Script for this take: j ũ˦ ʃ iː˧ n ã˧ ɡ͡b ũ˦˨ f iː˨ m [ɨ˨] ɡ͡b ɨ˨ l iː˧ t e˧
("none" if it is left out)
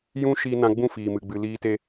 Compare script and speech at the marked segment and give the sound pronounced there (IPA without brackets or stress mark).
ɨ˨